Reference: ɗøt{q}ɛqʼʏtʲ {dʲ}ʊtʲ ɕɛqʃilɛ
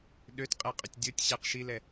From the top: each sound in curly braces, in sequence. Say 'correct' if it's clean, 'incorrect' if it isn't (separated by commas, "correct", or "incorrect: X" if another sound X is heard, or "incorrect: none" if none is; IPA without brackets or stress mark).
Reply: incorrect: qʼ, correct